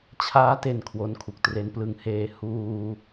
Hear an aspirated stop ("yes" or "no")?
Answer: yes